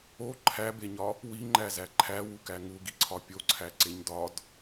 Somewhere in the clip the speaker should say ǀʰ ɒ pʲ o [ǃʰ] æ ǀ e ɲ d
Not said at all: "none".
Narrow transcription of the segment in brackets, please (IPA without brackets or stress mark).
ǀʰ